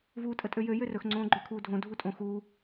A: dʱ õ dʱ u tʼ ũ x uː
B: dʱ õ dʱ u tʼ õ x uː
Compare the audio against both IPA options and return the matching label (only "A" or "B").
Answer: B